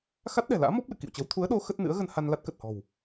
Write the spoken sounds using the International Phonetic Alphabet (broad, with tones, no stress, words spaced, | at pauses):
xa˦˥t̚ɗɛ̤˨˩la̰ː˧˥ mɔ˦˥p̚lɨ̰˧˨kḭ˧˨wt͡ɕə˨˦w t̪ʰu˨˦ə̯ɗo˨˦ xə˦˥t̚nɨ̰˧˥ə̯ɣə˧n ha˧n la˦˥t̚kə˨˩t̚hɔ̤˨˩w